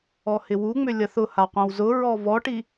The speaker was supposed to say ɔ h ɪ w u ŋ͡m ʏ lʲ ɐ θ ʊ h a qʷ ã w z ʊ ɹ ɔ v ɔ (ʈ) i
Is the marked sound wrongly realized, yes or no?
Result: no